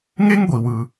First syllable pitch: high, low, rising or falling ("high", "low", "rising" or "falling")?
high